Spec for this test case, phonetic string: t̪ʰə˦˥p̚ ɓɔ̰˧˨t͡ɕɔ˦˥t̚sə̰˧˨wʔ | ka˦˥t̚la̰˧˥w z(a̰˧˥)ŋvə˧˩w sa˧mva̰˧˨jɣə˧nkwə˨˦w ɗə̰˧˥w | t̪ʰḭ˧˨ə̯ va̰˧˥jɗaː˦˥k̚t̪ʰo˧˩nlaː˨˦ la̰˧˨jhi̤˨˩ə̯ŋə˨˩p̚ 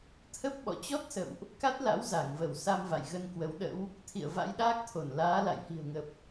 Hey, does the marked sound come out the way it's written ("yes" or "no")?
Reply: no